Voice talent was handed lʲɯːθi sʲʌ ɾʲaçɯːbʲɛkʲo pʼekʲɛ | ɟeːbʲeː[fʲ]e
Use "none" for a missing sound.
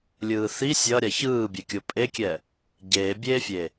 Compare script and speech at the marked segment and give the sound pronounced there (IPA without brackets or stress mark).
fʲ